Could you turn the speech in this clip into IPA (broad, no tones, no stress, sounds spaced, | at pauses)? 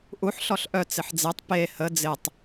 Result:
ʔ u ħ ɬ ɔ ɬ ʔ œ t͡s ɪ ħ d͡z e tˤ p e h ə d͡z ɪ tˤ